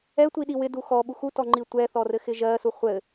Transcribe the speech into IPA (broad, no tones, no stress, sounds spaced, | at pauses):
ɛ tʷ i ɗ i w ɪ d u x ɔ ɓ u x u t ɔ ŋ͡ǃ i tʷ ɛ θ ɔ r ɘ x ɪ ʒ ɜ s u χʷ ɘ